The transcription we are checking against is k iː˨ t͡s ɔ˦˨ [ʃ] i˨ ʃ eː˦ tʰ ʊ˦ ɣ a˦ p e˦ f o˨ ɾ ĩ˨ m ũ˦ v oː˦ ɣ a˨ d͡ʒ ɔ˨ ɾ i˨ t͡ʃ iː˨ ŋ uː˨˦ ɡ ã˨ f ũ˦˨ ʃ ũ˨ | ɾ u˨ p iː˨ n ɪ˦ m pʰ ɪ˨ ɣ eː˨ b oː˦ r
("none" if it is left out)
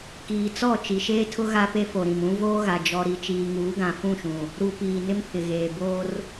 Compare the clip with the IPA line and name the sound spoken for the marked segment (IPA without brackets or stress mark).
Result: t͡ʃ